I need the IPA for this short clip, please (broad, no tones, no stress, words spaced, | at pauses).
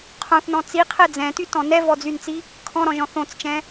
qʰõθnɔ̃ t͡siqʰɛ d͡zɛ̃tytɔ̃ nɛvɔd͡zynt͡si | kʰɔ̃ɾɔ̃ʒɔ̃ θõt͡st͡ʃɛ̃